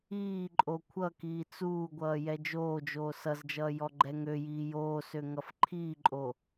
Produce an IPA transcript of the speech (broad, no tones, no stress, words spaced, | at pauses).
iːǃʼo kʷʰʌkiː t͡suːɡʷʌː jɛd͡ʒoːd͡ʒoː sʌzd͡ʒʌː jɔɡ͡ǃɛŋøjiː joːsø ŋʌfǃʰiːǃʼo